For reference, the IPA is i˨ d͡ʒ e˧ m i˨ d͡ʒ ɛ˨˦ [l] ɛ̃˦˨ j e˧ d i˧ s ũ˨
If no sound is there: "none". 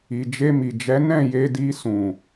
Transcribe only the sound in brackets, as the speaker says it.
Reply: n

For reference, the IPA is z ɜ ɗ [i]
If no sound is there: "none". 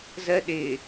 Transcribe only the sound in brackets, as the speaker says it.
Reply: ɪ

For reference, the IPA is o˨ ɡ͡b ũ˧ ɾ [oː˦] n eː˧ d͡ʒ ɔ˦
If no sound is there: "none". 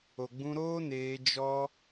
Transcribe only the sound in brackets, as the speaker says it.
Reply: oː˦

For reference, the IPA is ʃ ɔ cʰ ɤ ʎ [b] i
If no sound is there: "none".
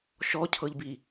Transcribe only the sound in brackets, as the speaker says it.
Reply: b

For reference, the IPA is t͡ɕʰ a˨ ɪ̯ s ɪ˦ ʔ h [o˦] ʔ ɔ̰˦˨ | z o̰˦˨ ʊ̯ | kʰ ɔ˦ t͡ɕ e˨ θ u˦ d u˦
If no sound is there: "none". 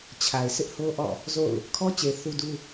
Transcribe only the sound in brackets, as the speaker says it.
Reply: o˦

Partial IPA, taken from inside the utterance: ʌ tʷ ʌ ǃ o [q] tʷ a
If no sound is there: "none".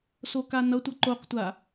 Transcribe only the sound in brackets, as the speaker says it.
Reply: q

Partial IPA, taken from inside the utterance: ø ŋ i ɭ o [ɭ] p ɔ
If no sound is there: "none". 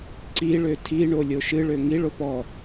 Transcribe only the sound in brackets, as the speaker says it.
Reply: none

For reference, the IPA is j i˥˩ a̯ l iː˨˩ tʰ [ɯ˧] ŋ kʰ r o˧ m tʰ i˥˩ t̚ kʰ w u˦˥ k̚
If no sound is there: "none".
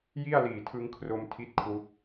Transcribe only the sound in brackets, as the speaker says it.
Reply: ɯ˧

